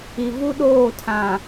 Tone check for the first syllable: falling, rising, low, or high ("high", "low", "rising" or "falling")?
low